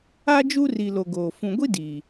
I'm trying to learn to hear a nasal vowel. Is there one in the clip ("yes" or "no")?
yes